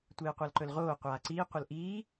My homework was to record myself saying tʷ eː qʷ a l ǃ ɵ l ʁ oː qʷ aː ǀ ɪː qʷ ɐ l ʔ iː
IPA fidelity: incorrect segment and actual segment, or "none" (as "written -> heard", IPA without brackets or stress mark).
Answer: ɪː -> iː